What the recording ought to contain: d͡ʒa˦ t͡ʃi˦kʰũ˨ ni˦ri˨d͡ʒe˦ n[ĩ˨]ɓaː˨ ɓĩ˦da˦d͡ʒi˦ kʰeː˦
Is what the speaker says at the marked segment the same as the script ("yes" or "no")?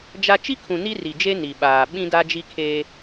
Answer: no